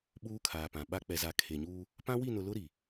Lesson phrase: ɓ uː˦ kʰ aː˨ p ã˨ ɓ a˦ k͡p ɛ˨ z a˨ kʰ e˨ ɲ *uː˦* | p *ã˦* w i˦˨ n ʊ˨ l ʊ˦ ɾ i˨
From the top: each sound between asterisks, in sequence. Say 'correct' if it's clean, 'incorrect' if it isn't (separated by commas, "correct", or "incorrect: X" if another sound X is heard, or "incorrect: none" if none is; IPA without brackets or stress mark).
correct, correct